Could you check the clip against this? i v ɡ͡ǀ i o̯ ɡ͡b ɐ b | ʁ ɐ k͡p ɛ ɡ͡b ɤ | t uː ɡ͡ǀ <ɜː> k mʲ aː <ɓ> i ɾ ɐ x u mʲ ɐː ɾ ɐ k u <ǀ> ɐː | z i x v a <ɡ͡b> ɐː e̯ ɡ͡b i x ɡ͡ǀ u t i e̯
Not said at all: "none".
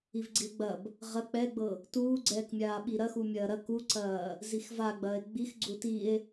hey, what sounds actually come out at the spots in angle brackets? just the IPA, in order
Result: ɛː, ɓ, ǀ, ɡ͡b

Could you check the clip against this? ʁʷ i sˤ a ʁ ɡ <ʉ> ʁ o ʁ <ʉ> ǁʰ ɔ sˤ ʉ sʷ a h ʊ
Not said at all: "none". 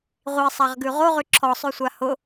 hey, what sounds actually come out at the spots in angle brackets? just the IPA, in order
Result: ʉ, ʉ

